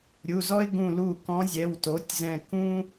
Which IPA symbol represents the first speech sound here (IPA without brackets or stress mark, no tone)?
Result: ɾʲ